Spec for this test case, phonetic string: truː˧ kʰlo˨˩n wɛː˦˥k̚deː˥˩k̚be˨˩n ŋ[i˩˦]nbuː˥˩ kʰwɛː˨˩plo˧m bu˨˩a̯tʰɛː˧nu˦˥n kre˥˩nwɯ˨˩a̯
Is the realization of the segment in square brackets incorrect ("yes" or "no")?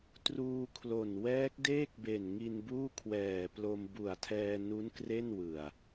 yes